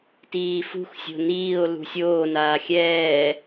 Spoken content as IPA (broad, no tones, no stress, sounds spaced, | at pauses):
t iː f ṳ x sʲ o̤ n iː o̯ l ṳ sʲ oː n aː xʲ ɛː